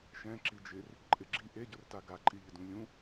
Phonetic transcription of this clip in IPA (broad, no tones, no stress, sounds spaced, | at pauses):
ʃ ɛ̃ ǁ i d͡ʒ ɪ r | ǃʼ ɪ ɡ͡ǁ i ʔ e ɟ ʊ r t a ɡ a ǃʼ i ʎ ɪ d ũ lʲ ũ